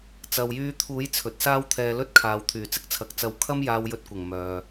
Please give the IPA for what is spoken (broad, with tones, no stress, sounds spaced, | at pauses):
t͡s ɐ˨ w j yː˧ t̪ʰ uː˨˥ j t͡sʰ ɵ˨ t̚ s aː˥ w t̪ʰ ɛː˧ l ɵ˥ t̚ kʰ aː˨ w t̪ʰ yː˨˩ t͡s ɪ˥ k̚ t͡sʰ ɐ˨ k̚ t͡s ɐ˨˥ w kʰ ɐ˥ m j aː˧ w j ɵ˧ t̚ kʷ ɐ˨˩ ŋ m œː˨